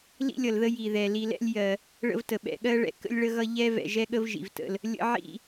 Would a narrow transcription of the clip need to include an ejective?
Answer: no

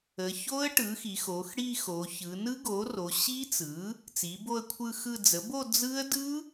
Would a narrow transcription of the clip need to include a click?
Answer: no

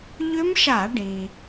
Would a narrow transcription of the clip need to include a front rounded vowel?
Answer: yes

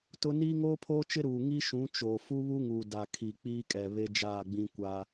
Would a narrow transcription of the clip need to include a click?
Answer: no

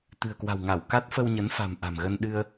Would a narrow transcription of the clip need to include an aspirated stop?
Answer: no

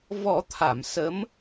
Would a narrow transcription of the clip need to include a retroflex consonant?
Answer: no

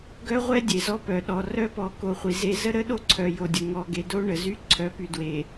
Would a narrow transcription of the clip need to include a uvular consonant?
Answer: yes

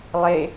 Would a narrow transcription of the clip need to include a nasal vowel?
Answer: no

